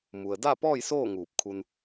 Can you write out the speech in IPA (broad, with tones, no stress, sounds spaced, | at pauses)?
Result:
m u˩ ə̯ d a˥˨ p ɔː˥˨ j s oː˥˨ ŋ uː˧˩ p̚ kʰ u˧ n